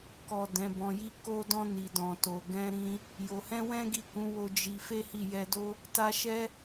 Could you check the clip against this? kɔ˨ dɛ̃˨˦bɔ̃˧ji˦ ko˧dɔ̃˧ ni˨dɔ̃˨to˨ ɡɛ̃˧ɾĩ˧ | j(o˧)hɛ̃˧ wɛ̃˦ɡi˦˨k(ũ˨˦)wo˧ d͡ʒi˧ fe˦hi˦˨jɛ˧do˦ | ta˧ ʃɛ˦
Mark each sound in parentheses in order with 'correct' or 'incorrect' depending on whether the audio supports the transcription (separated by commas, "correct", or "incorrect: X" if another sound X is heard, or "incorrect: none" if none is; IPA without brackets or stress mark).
incorrect: o˨, correct